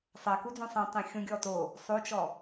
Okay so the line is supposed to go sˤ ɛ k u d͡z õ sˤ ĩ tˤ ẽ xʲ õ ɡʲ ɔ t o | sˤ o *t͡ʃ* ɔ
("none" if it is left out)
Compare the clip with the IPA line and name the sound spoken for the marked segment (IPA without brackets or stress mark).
t͡ʃ